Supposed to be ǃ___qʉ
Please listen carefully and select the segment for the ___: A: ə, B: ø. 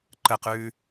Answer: A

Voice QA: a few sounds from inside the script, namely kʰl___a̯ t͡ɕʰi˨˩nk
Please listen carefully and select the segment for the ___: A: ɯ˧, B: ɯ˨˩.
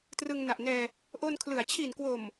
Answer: B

